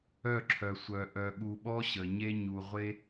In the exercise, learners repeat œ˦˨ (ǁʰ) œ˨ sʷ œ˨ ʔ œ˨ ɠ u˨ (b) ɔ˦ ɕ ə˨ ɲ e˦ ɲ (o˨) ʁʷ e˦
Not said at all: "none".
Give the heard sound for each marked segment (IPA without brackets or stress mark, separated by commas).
ǁʰ, ɓ, u˨